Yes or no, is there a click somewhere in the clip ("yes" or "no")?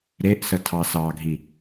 no